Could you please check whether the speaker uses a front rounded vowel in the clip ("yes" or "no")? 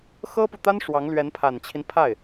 no